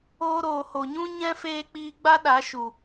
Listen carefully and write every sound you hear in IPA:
oː˧ ɾ oː˨ h o˨ ɲ ũ˦ ɲ ɛ̃˦ f eː˧ k͡p iː˧ ɡ͡b a˦ ɗ a˨˦ ʃ u˨

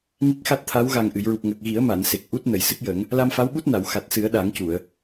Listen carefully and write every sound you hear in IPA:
ŋ i˦˥ k̚ x a˦˥ t̚ t̪ʰ a˧˥ w ɣ a˨˩ ŋ ʔ ɨ˨˩˨ j ɹ u˨˩ p̚ ŋ ə˨˩ k̚ ɣ i˨˩˦ ə̯ m a˨˩˨ n s e˨˩ k̚ ʔ u˦˥ t̚ n ə˨˩˨ j s ɨ˦˥ k̚ j ə˨˩˦ ŋ | l a˧ m f a˧˥ w ɓ u˦˥ t̚ n a˨˩˨ w x a˨˩ t̚ s ɨ˨˩˦ ə̯ ɗ a˨˩˦ ŋ c u˨˩˨ ə̯

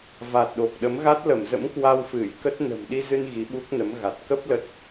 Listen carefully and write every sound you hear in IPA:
v a˨˩ t̚ ɗ o˨˩ k̚ ɗ ə˨˦ m ɣ a˦˥ t̚ l ə˧˩ m z ə̰˧˥ m k w a˧ w f ɨ˧˩ j k ə˦˥ t̚ n ə̤˨˩ m ɗ i˧ z ɨ˧ n ɣ i˨˦ ɓ u˦˥ k̚ n ə˨˦ m ɣ a˨˩ t̚ k ə˦˥ p̚ l ə˦˥ t̚

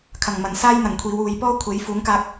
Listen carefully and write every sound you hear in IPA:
kʰ ɐ˨˩ ŋ m ɐ˨˩ n s aː˥ j n̪ ɐ˨ ŋ kʷʰ iː˨˧ w uː˨˧ j p ɔː˥ kʷʰ e˨˥ j f uː˨˥ ŋ k aː˧ k̚

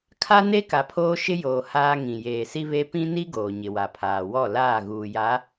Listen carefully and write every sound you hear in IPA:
kʰ a˦ n e˦ k a˨ pʰ oː˦ ʃ ɪ˦ j oː˨ h aː˦ ŋ ĩ˨ j eː˨ s i˦ β e˦ p ĩ˦ n i˦ ɡ oː˨ ɲ ɪ˨ w a˨ pʰ aː˨ w ɔ˦˨ l aː˦˨ ɣ uː˨ j a˨˦

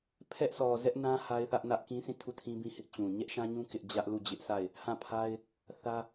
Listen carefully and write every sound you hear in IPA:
pʰ ɛ˦ ʔ s ɔ˨ z ɛ˦ ʔ n ã˦ h a˦ ɪ̯ θ ä˦ ʔ n ä˦ ʔ k ĩ˦ s ĩ˦˨ tʰ u˦˨ tʰ ĩ˦ b ĩ˦ h ɪ˦ ʔ t͡ɕ ũ˨ ɲ ɛ˦ ʔ ʃ ã˦ ɲ ũ˦ k ɪ˦ ʔ d͡ʑ ä˦ ʔ l u˦˨ d͡ʑ ɪ˦ ʔ s a˦˨ ɪ̯ | h ã˦˨ pʰ a˦ ɪ̯ | θ ä˦

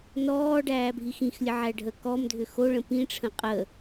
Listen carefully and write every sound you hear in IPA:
n ɔː ɖ æː bʱ i x ĩ x lʲ ə ʕ æ ɖʱ ə k ɔ m dʱ ʏ x o ɭ ə̃ p ĩ ʈ͡ʂʰ ə̃ qʼ ə

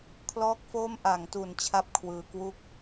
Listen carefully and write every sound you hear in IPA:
kʰ l ɔː˥˩ k̚ f oː˥˩ m ʔ a˩˦ ŋ t u˩˦ n t͡ɕʰ a˥˩ p̚ kʰ w ɯː˨˩ k w u˥˩ k̚

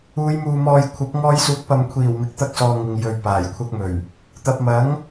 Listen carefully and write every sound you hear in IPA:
uː˨˧ j m uː˨ m ɔː˨ j kʷʰ ɐ˨˥ p̚ ŋ ɔː˧ j s uː˨˥ k̚ p ɐ˨ m kʷʰ iː˨˩ w m ɪ˨ k̚ t̪ ɐ˧ k̚ s ɔː˨ ŋ ɪ˨ ŋ j ɵ˨ ɥ p aː˨˩ j kʷʰ ɐ˧ k̚ m ɵ˨˩ ɥ | t̪ ɐ˨ p̚ m ɐ˨˥ ŋ

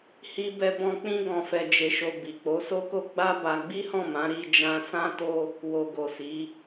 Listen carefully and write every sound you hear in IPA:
h i˧ b ɛ˧ b ɔ̃˧ k͡p ĩ˦ ɡ ɔ̃˧ f ɛ˧ d͡ʒ e˧ ʃ o˧ b i˨ k͡p o˨˦ s o˦ k o˦ ɡ͡b a˦ b a˧ ɡ͡b i˦ h ɔ̃˦˨ m ã˨˦ ɾ i˧ d͡ʒ ã˧ s ã˦ t o˦ | w o˨ ɡ o˨ s i˨˦

